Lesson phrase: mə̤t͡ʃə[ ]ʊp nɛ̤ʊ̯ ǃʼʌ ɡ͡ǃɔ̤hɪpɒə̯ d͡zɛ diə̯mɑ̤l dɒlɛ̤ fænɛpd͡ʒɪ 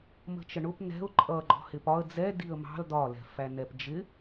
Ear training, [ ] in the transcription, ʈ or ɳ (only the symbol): ɳ